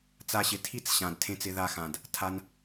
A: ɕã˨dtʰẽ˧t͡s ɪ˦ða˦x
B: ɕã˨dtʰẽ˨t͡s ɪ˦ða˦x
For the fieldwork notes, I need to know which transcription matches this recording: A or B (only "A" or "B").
A